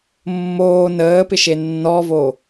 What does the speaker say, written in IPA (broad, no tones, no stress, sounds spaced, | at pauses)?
mː oː n əː p ɪ ʃ e nː ɔ v o